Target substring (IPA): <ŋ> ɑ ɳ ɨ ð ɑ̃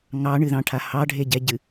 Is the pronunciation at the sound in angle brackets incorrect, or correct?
correct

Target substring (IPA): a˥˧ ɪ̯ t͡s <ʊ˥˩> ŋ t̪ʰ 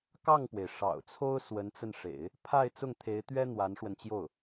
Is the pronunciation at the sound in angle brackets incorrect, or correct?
correct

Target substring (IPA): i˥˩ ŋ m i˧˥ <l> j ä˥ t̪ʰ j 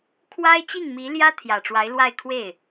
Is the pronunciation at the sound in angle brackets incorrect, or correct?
correct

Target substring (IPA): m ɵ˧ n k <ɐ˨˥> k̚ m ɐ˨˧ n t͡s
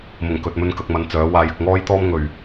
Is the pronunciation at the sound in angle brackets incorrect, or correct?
incorrect: ɐ˨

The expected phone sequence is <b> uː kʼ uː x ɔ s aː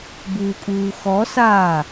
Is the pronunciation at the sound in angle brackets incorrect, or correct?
correct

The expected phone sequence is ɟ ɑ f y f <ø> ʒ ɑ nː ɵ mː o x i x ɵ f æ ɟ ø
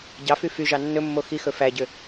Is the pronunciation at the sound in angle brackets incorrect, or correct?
incorrect: y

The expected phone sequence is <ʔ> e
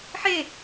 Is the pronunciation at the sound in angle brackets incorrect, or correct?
incorrect: ħ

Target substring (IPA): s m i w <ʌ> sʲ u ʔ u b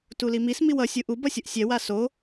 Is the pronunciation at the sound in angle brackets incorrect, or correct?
correct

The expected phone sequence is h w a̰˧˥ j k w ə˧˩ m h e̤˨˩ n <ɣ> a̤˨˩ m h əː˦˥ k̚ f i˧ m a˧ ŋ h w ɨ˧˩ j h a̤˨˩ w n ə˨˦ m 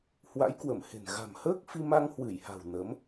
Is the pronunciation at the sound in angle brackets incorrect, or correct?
correct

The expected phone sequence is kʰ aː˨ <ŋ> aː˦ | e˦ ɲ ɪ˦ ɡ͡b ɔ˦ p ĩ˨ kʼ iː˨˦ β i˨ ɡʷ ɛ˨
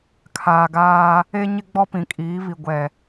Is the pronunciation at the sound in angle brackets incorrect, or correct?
incorrect: ɡ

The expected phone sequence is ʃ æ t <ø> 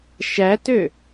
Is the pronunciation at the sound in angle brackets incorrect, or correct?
correct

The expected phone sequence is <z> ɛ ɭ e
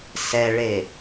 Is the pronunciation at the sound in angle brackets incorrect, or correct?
incorrect: s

